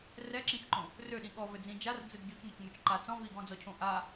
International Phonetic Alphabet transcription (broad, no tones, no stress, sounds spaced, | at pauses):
r ɛ ǁ ĩ x ǃ õ | r ø ɗ ĩ ɠ ɔ v ɘ d͡z ĩ d͡ʒ a r d͡z ɘ d ɟ o c ŋ ɛ c ŋ ø t͡ʃ ǃ a t͡s ɔ̃ v i ɡ ɔ̃ d͡z ɔ cʰ õ ʔ a